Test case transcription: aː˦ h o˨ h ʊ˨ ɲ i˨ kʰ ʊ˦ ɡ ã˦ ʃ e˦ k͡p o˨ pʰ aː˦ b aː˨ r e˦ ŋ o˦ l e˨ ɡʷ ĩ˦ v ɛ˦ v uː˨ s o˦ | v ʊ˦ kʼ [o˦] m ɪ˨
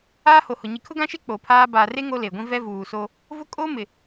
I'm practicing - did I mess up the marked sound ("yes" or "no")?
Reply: no